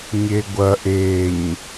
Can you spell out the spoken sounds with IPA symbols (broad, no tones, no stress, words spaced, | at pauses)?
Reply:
ɲeɡʷɐ ʔeɲ